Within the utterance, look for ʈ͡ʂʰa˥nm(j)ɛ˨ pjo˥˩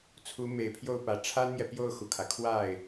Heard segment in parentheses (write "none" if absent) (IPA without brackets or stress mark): j